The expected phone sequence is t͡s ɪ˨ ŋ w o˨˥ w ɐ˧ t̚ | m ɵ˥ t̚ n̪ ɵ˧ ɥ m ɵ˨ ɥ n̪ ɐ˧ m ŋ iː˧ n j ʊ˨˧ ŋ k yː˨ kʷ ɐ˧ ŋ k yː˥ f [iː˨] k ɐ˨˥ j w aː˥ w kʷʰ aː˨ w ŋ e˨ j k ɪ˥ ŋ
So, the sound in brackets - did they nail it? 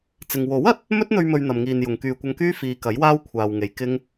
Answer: yes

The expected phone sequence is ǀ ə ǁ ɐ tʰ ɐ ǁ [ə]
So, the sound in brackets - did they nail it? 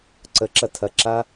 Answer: no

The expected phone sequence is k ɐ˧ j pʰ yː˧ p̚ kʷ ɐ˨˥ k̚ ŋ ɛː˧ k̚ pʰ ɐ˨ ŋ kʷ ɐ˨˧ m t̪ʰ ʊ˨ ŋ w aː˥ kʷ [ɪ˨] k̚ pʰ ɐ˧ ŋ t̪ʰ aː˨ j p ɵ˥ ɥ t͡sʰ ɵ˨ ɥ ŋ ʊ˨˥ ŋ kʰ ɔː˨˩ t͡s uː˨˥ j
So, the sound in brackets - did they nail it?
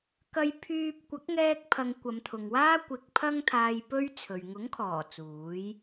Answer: yes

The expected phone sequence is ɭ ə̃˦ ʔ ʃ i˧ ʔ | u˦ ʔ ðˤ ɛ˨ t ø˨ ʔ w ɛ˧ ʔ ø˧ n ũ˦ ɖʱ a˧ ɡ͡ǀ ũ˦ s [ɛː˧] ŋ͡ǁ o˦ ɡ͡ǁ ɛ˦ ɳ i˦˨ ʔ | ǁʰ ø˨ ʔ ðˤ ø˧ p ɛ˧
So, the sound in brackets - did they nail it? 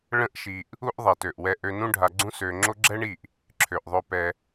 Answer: no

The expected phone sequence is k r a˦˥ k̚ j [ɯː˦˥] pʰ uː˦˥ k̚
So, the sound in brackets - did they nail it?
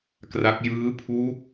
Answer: yes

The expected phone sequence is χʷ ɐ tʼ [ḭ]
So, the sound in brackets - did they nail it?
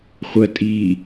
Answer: no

